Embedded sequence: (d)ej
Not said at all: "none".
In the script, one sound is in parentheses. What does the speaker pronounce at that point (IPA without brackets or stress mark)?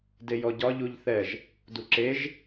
d